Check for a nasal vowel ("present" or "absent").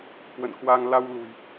absent